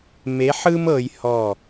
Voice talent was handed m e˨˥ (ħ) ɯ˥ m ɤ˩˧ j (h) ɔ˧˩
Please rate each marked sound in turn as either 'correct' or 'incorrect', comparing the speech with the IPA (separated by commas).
correct, correct